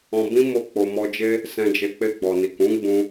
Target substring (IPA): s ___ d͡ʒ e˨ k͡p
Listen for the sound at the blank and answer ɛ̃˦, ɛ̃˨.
ɛ̃˨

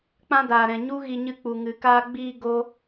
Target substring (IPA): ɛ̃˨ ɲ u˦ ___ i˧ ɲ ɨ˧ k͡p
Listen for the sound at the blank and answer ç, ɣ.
ɣ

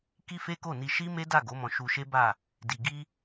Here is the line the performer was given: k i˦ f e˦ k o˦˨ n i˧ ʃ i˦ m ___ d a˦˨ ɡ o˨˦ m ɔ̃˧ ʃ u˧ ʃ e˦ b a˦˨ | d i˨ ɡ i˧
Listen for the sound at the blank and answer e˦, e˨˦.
e˦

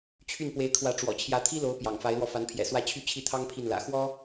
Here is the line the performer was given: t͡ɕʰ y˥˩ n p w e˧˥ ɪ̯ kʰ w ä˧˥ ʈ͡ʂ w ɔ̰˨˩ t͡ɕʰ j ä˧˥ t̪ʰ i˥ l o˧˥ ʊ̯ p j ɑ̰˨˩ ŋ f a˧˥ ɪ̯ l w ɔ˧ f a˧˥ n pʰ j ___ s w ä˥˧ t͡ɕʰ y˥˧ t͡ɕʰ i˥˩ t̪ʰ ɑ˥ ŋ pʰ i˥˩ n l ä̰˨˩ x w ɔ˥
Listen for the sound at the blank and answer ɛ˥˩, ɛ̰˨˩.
ɛ̰˨˩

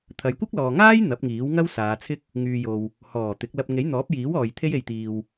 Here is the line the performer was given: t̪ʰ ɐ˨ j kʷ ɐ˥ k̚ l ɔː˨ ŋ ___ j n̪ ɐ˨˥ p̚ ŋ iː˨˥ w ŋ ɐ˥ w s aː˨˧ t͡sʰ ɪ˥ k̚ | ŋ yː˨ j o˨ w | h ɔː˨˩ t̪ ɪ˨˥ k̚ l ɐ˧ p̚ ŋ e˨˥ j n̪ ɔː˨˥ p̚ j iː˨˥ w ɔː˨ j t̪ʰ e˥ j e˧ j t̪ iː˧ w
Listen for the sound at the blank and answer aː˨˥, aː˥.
aː˥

